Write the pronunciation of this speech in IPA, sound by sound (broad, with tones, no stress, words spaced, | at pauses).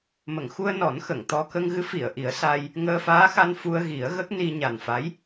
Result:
mə˨˩˨ŋxu˧ə̯ nɔ˨˩˦nxə˨˩˨ŋ t̪ɔ˧ kə˧ŋɣɨ˧˥ fi˨˩˨ə̯ʔi˨˩˦ə̯ sa˧j | ŋəː˧faː˧˥xa˧n fu˧ə̯ɣi˨˩˦ə̯ ɣə˦˥k̚ni˧ ɲa˨˩nfa˧˥j